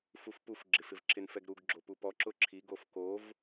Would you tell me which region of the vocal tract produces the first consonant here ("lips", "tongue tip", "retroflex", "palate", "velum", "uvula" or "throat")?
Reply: lips